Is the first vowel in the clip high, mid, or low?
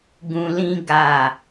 high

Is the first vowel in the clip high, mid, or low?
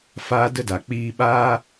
low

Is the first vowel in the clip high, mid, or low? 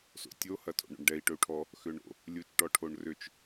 mid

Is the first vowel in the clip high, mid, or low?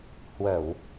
mid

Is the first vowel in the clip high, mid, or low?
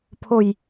mid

